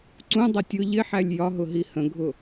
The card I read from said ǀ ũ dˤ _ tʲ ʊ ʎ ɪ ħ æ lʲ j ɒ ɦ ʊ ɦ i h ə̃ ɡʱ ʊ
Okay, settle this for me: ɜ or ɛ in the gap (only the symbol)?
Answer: ɜ